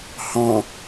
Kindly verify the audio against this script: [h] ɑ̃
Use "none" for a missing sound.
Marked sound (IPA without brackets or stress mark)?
h